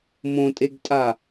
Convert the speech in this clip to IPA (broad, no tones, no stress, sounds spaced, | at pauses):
m õ tʼ e ɡ tʼ a